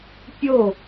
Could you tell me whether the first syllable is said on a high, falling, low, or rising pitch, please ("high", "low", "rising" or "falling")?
falling